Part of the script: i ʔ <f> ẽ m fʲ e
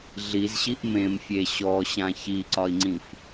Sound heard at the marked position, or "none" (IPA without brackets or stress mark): m